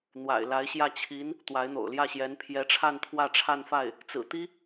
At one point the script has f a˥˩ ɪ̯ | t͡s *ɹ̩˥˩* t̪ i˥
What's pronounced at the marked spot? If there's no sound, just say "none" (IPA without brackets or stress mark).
ɹ̩˨˩